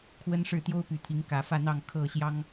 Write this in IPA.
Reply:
kʰ w ə˦ n ʂ ɻ̩˥˨ t̪ j o˦ ʊ̯ p y˨˩ t̪ʰ i˨˦ ŋ k ä˨˩ f ä˥˨ n̪ ɑ˥˨ ŋ kʰ ɤ˥˨ ɕ j ɑ˦ ŋ

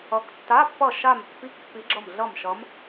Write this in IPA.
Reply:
ʌ˨˦ k tː a˧˥˧ pː ʌ˧˩ ʃ a˧˩ m pː i˧˥˧ k pː i˨˦ ɡ͡ǁ ʌ˧˩ m ɮ ʌ˧˩ m ʃ ʌ˨˦ m

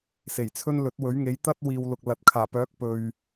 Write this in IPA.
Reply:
s e˨˩ j t͡sʰ ɵ˥ n l ɵ˨˥ t̚ w ɵ˨˥ ɥ ŋ e˨˥ j t̪ ɐ˥ t̚ w iː˨ w l ʊ˨ k̚ l ɐ˨ t̚ kʰ aː˨˩ p œː˨˥ k̚ p ɵ˨ ɥ

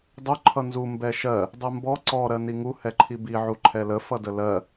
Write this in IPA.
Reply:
dˤ ʊ ǃʰ ʌ n z u m b ɛ ʃ ɜ | dˤ ɛ m b ɔ ǀ ɔ ɾ ɜ n i ŋ u h ɛ ǃʰ i b i ʕ u ǃʰ ɛ l ə f ʌ d ə l ɜ

